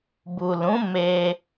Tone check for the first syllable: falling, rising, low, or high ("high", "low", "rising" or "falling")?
low